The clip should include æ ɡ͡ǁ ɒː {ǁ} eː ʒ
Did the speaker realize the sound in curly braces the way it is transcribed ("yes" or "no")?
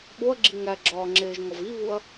no